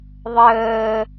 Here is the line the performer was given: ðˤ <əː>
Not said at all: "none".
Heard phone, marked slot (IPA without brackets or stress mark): əː